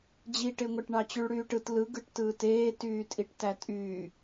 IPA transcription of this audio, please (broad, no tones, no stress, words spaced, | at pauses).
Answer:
d͡ʑiʈeŋʷɑʈ ɳɑt͡ɕyɭɽyːʈɯt lɯɡɯʈtɯːt eːtyːtʼiʈ tætʼyː